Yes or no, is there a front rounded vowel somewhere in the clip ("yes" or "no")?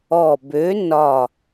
yes